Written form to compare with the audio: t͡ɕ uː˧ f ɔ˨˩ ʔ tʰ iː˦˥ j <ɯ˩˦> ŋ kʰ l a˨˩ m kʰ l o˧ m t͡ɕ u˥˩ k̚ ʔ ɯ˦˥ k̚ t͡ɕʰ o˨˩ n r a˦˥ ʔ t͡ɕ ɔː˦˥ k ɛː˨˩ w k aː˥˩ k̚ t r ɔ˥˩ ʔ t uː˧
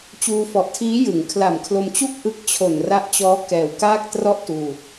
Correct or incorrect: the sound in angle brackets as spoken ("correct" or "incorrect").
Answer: correct